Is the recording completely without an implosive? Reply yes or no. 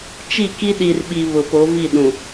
no